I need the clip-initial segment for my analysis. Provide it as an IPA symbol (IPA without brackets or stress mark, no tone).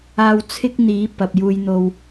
aː